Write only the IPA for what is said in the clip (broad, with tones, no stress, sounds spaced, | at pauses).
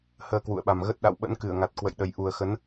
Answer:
h əː˨˩ k w ṵ˧˨ ə̯ ɓ a˨˩ m ɣ ə˦˥ t̚ ɗ a̰˧˨ w ɓ ə̰˧˥ n k ɨ˧˩ ə̯ ŋ a˨˩ t̚ k w ə̰˧˨ j ɗ ə˨˩ j ʔ u˨˩ ə̯ x ə˨˦ n